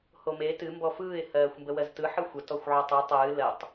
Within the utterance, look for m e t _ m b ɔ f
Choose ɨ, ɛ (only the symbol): ɨ